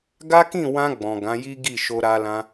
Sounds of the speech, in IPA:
ɡ a˦ k ĩ˦˨ w ã˧ ɡ͡b ɔ̃˨ ɡ ã˨˦ j i˦ ɡ i˦˨ ʃ o˧ ɾ a˧ l ã˧

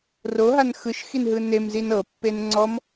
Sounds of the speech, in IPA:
r o ɦ a n x ɯ ʃ x i n ɦ ɯ n e m z i n ɤ pː e n ŋ͡ǀ ɔ m

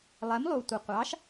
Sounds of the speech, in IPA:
lˠ ɛ˩˥ m lˠ u˩ tʷ ə˩ qʷ ɑ˩˥ ʃ

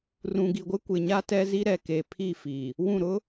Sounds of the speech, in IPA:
r ũ˨ ɡ i˨ ɡʷ ɪ˦ kʷ ɪ˨ ɲ a˦ t ɛ˦ z i˦ ɾ ɛ˨ k eː˨ pʰ i˦˨ f i˨ | w ũ˦˨ ɾ ʊ˦

